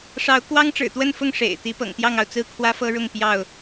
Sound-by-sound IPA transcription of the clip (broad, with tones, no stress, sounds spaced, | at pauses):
ʂ ɑ˨˦ ʊ̯ k w ɑ˦ ŋ ʈ͡ʂ ɻ̩˨˩ t̪ w ə˥˨ n f ʊ˥˨ ŋ ʂ ḛ˨˩ ɪ̯ t̪ i˨˦ p ɤ̰˨˩ ŋ t̪ j ɑ˥˨ ŋ ɑ˩ ʊ̯ t͡s ɹ̩˥˨ kʰ w ä˦ f ɤ˦ ɻ ʊ˥˨ ŋ p j ɑ˥˨ ʊ̯